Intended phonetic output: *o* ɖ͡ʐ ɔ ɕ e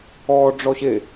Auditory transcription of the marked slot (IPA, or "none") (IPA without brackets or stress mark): ɔ